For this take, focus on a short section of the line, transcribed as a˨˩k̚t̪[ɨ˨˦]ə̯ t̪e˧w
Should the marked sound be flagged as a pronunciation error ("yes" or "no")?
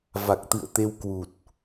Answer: yes